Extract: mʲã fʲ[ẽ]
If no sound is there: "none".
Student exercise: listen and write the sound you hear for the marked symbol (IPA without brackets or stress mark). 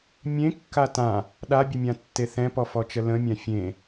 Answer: ẽ